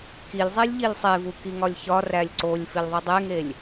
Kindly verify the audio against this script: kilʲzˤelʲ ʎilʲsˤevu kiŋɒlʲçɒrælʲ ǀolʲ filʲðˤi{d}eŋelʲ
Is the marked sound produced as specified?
no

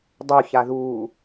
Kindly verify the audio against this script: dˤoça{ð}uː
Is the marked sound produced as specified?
yes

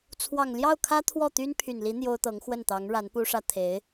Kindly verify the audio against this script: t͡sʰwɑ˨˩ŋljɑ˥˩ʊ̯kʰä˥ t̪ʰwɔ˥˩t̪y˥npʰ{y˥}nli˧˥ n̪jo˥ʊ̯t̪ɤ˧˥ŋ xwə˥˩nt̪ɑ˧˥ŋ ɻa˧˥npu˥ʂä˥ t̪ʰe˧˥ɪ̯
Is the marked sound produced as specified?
no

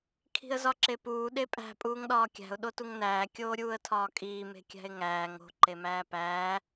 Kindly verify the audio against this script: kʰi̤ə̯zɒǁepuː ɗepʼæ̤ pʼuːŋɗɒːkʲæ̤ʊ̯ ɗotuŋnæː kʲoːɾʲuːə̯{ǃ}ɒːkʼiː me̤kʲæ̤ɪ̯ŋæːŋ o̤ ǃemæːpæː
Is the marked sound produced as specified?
no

